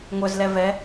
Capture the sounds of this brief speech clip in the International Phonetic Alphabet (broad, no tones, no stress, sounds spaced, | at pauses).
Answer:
ŋʷ œ z l ɛ v ɛ